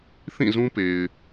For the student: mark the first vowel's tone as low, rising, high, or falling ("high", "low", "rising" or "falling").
falling